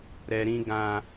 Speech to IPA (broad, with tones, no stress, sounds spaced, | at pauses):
ɾ ɛ˧ ɾ ĩ˦ ɡ ã˦